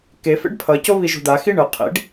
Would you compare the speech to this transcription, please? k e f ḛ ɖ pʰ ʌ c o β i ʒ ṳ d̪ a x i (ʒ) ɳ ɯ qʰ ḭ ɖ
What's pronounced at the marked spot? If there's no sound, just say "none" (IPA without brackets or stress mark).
none